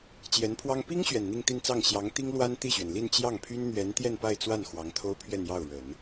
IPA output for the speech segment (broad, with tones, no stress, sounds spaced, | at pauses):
t͡ɕ j ɛ˧˥ n pʰ w ɑ˥ ŋ p i˥ ŋ ɕ ɥ ɛ˨˩ n n̪ i˥˧ ŋ t̪ i˥˧ n t͡s ɑ˥˩ ŋ ɕ j ɑ˧˥ ŋ t̪ i˥ ŋ l w a˥ n t̪ i˥˩ ɕ ɥ ɛ˩ n l i˥˧ n t͡ɕ j ɑ˥˩ ŋ pʰ y˥ n n̪ ɥ ɛ˧˥ n t̪ j ɛ˥˧ n p a˥˧ ɪ̯ t͡s w a˥˩ n x w ɑ˧˥ ŋ t̪ʰ o˥ ʊ̯ pʰ ɥ ɛ˥˧ n j ɑ˥˩ ʊ̯ ɻ ə˨˩˦ n